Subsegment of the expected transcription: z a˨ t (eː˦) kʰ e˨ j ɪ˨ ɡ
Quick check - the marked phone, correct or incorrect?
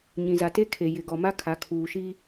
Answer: incorrect